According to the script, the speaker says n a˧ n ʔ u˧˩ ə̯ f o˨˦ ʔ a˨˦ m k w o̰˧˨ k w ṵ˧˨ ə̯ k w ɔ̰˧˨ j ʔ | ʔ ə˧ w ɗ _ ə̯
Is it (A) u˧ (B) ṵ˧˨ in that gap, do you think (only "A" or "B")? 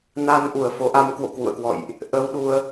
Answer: A